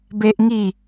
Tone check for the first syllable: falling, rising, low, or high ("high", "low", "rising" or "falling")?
high